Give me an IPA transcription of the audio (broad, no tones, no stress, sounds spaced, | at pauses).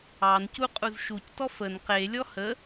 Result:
ɑ n c u qʼ u z ʃ u c t ɔ f ə n q e lʲ ɔ h ə